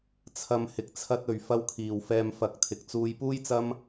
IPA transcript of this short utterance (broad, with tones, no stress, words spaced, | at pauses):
t͡sʰɐ˨m hɪ˨k̚t͡sʰɐ˧t̚ɵ˨ɥ fɐ˧wkʰiː˨wfɛː˧m fɐ˨k̚t̪ʰɪ˨k̚ t͡suː˧jpuː˥jt͡sɐ˥m